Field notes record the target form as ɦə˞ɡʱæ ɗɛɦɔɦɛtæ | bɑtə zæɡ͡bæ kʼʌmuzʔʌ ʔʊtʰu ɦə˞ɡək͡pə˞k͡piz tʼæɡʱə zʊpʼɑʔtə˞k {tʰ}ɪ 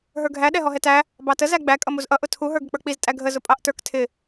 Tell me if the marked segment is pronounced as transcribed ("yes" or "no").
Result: yes